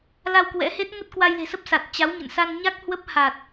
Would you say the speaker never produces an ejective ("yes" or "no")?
yes